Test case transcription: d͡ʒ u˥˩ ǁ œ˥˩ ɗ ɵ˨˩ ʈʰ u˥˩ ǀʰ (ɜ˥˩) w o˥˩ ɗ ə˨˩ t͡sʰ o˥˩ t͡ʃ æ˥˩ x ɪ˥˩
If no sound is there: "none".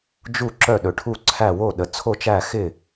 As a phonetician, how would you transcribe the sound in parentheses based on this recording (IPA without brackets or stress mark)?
æ˥˩